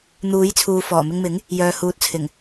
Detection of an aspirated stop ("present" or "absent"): present